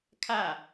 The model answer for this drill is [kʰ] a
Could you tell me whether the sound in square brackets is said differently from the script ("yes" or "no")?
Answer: no